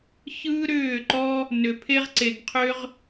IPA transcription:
ç ɯː˦ ɾ ʏː˦˨ ǃ ɔ˦ | n ʏ˨ pʰ e˦ ʁ ǀ e˨ ɡ qʰ ʏ˦ ʁ

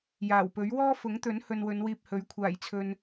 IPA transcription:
j aː˨˩ w p ɵ˨˥ ɥ w ɔː˥ f ʊ˨˥ ŋ t̪ ɵ˨˥ n h ɵ˧ n w ɵ˨˧ n w iː˧ p̚ h ɵ˨˥ ɥ kʷʰ aː˨˩ j t͡sʰ ɵ˨ n

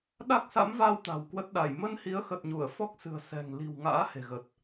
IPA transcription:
ɗ a˦˥ k̚ s a̰˧˥ m v a˧ w t̪ a̤˨˩ w k w ə˦˥ t̚ ɗ a˧˩ j m ə˧ n h i˨˦ ə̯ x ə˨˩ t̚ ɲ u˧˩ ə̯ f ɔ˦˥ k̚ s ɨ̤˨˩ ə̯ s ɛ̤˨˩ ŋ l i̤˨˩ w ŋ a̰ː˧˥ h e̤˨˩ ɣ ə˨˩ t̚

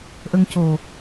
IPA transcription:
ʔ ə˧ ŋ c o˨˩

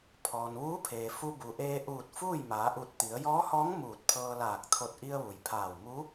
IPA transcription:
pʰ ɔː˩ n ʋ uː˧˥ pʰ eː˩ f u˧ b u˩ ʔ eː˧ ʔ uː˧˩ t̚ f uː˥˨ j m aː˩˧ ʔ u˧˩ t̚ t̪ i˩˧ ə̯ j ɔː˧˥ h ɔː˧˥ ŋ m uː˧˩ t̚ pʰ ɤː˧ l aː˧˩ k̚ t̪ʰ o˧˩ t̚ ʔ i˧ ə̯ ʋ u˩ j pʰ aː˧˩ w m u˧˥

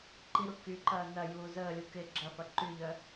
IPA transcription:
ǃ i ɾ u k y ǃ ɐː n ɐ j uː z əː lʲ u k ɪ ɡ͡ǁ ɐ f ɐ ǃ y ʎ œ

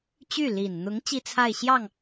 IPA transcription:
t͡ɕ y˥˩ l i˨˩ n n̪ ʊ˧˥ ŋ t͡ɕ i˥ t͡sʰ a˥˧ ɪ̯ ɕ j ɑ˥˩ ŋ

